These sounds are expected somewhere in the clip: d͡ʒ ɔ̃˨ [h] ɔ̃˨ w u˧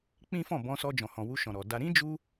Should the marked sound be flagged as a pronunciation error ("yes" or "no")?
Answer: no